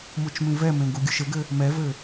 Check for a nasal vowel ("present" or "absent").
present